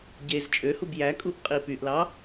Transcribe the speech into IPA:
ɟez t͡ʃʼøhub jækʼuʔ qʼipyʔlɑ

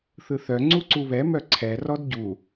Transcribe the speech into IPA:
θɯθœ ŋ͡ǀuǀuβɛ mœǀʰɛ rɔdɟu

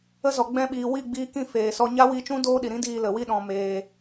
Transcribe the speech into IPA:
ə˦ zɔ˨ ɡ͡bɛ̃˧ɓiː˨wi˦˨ ɡ͡biː˧kĩ˦˨ feː˨sɔ˧ ɲa˦wi˧t͡ʃũ˦ doː˦ɗi˨ɾĩ˦diː˧ lə˨ wi˧ɗɔ̃˨ meː˧

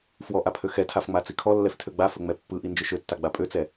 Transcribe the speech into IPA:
fwɔʔapʰø xɛtʰafŋ͡ma t͡sikʰɔ lːɛftʰøɡ͡ba fɵŋ͡mɛpːɯʔi nd͡ʒɵʃøtːaɡ͡ba pʼøt͡sɛ

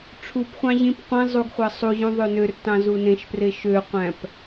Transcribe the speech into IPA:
ʈ͡ʂʰupχʷɑ̃ ʑĩp qʷĩ zˤuɡχʷɑ sˤuʑũ ðˤønørtɑ̃ zunẽʃpre ʃøqʷæ̃p

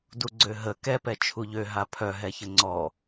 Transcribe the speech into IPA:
duɡ͡ǀøɦə kɛpɛ t͡ʃʰuʎø ɦapʰœ ɦɛçəŋ͡ǀɔ

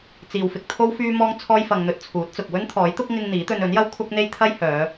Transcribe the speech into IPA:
t͡siː˨wfɪ˧k̚t̪ʰo˥w fyː˧mɔː˧ŋt͡sʰɔː˧j fɐ˧ŋn̪ɵ˧t̚t͡sʰuː˨˥t̚t͡sʊ˨k̚ wɵ˥nt̪ʰɔː˨˥jt̪ʊ˥k̚ ŋɪ˧ŋ n̪iː˨˥t̪ɵ˧n ɵ˨˥njɐ˥w kʷʰɐ˥k̚n̪e˥j t̪ʰɐ˥jhœː˨˧

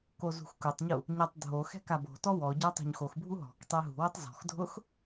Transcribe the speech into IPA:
kozṳxkʊtˤɲu | ɲatˤdʱoxɛ̤ kabo̤tɔ wɔ ɟatˤo̤ɲxoxbʱu ɦɔ̤k tˤeɦṳwɪtˤ zɔ̤xdʱʊx

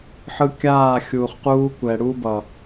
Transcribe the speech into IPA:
ħɯ˧ kʲaː˦˨ xʲuː˨χquː˧ kʷɛ˨ɽu˦ bʌ˨

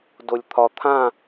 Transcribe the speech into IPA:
dolʲt̪ʰɒ t̪ʰã

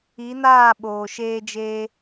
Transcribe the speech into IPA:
i˨˦naː˦˨ ɓoː˨ʃeː˦d͡ʒeː˦

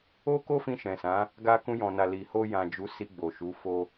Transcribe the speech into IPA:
o˦ko˦fĩ˧ ʃɛ̃˨sã˨˦ | ɡa˧kũ˧jɔ̃˨na˨ li˨ ho˧ jã˨d͡ʒu˨˦ si˧ɡ͡bo˨ʃu˨˦ fo˧

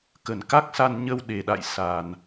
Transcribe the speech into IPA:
kə˨˩nka˦˥k̚sa˧n ɲə˧wɗe˨˩ɗa̰˧˨j sa˨˩n

